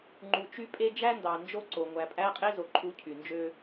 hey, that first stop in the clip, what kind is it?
click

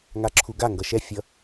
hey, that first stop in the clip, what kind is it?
click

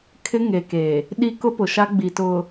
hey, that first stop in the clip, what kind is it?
aspirated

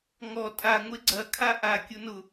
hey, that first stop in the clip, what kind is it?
ejective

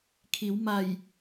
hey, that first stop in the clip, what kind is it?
aspirated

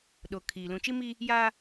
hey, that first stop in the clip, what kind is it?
implosive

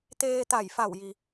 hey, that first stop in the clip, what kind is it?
plain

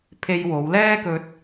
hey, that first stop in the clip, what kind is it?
aspirated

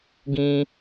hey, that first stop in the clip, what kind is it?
plain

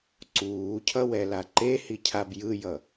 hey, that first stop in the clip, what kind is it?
click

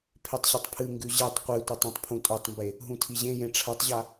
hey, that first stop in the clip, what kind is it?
aspirated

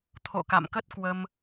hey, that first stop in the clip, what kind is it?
aspirated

